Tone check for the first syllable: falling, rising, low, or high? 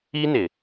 high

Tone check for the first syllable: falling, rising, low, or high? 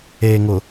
low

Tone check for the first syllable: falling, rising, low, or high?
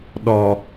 low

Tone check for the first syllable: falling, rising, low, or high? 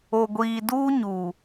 low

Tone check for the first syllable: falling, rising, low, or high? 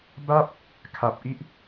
falling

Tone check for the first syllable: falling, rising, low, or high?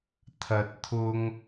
rising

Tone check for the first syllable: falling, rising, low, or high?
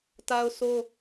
high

